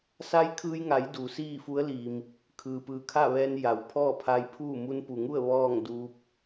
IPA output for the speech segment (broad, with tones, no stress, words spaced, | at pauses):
sa˧˥jkʰɯː˧jŋa˩˧j duː˩˧siː˥˨fu˧˥ə̯ li˩m | kʰɯː˩pɯː˩kʰa˥˨ʋɛː˧n ja˩w pʰɔː˥˨pʰa˧jpʰuː˥˨ mu˧npu˩ŋu˥˨ə̯ ʋɔː˥˨ŋ duː˧p̚